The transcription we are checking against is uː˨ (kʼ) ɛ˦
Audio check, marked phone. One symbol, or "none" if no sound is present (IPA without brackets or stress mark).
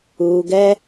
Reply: ɡ